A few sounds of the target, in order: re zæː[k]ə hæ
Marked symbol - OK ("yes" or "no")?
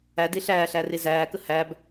yes